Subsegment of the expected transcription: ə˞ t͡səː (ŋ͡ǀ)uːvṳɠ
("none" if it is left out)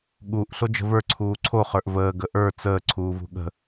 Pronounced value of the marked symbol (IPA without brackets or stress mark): ǀʰ